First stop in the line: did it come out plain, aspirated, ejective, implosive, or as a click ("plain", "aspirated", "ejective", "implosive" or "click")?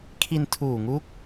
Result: aspirated